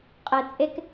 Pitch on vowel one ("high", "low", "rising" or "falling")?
low